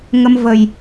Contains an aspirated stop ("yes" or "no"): no